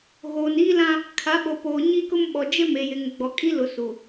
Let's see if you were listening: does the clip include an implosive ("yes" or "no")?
yes